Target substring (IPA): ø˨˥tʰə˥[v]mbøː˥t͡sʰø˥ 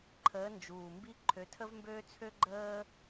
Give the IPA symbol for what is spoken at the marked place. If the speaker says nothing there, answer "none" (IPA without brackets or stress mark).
v